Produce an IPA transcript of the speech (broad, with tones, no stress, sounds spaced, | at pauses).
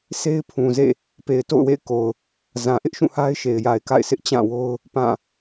sʰ e˦ ɪ̯ pʰ ũ˨ z ḛ˦˨ | p e˨ ɪ̯ t o̰˦˨ ʊ̯ w ḛ˦˨ ɪ̯ k o˨ ʊ̯ | z ã˨ ʔ ɪ˦ ʔ ʃ ũ˦˨ h a˦ ɪ̯ ʃ e˨ ɪ̯ j a˨ ɪ̯ k a̰˦˨ ɪ̯ sʰ ɪ˦ ʔ t͡ɕ ã˦˨ w o˦ ʊ̯ | p ã˦˨